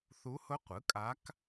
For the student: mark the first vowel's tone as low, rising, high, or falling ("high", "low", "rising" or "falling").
rising